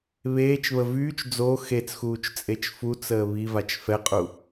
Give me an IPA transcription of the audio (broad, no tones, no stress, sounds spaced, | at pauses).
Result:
β eː t͡ʃ β ə v yː t͡ʃ d͡z o x e t͡s x uː t͡ʃ t͡sʼ e t͡ʃ f u t͡s əː β i v a t͡ʃ f ɛ qʼ u